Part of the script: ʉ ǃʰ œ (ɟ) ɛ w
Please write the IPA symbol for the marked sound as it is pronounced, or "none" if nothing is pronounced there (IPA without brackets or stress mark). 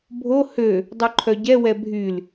ɟ